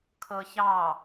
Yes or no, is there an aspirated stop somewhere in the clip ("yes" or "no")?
yes